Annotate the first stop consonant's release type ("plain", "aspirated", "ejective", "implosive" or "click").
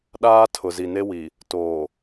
implosive